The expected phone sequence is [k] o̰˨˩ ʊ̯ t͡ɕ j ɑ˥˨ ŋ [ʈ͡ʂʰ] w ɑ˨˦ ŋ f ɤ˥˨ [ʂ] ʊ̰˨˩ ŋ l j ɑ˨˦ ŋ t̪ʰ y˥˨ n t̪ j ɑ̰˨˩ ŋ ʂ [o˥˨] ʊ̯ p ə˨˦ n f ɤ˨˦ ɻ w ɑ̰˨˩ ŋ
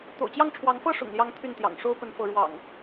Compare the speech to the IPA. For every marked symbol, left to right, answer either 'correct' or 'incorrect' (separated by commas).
incorrect, correct, correct, incorrect